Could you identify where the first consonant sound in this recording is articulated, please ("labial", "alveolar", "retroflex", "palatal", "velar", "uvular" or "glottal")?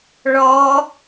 retroflex